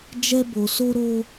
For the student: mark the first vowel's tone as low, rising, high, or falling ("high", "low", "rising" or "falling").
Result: high